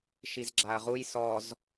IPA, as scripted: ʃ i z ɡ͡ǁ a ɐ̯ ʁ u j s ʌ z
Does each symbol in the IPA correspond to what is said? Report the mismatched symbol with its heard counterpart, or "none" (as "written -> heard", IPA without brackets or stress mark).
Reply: ʌ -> ɔ